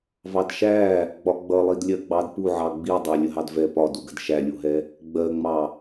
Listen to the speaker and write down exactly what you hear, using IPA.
v ɑ d ʃ æ | ɡ͡b ɒ ɡ͡b ʌ lˠ i d lʲ ɜ ɡ͡b ɑ d p u ʕ ɑ ɡ͡b i dˤ æ lʲ ə ɦ ɑ d v ɛ p ɒ d u ɡ ə d ʃ æ lʲ u ɦ ɛ | ɡ͡b ɜ ŋ͡m ɑ

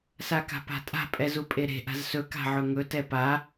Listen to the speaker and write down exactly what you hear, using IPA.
s a k a̤ p a̤ tʼ a̤ pʼ ɛ z u pʼ e ɾ e̤ ʔ a̤ z s ɵ k a̤ ʕ ɵ ŋ ɵ t ɛ p a

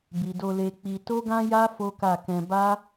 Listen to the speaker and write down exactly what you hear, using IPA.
b i˨ d o˧ l e˧ k͡p i˧ t o˦ ɡ ã˦ j a˦ f o˦ k a˦˨ k ɛ̃˧ b a˦

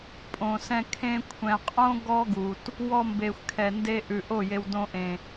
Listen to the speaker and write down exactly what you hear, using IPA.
pʼ õ˨ s ɛ̃˧ kʰ ẽ˧ kʷʰ ɛ̃˨ qʼ õ˦ ɡ ɔ˦ ɡ u˨ t | w ɔ˧ m b e˨ xʷ kʰ ɛ˨ n d e˦ ʔ ʉ˨ ʔ o˦˨ j e˧ w d õ˧ ʔ ẽ˨

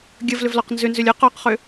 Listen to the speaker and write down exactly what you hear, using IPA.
ɡʲ ə v l ʏ v l ɔ q n z ʏ n z ʏ lʲ ə q ɔ q χ ʏ

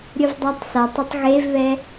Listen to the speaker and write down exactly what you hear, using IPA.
ɾʲ ʊ v dˤ a tˤ s a tˤ ʊ tˤ ɣ e v β ɛ

